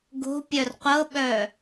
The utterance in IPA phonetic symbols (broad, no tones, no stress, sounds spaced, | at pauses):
ɡ o̤ pʲ œ r qʷ ɤ ɓ œ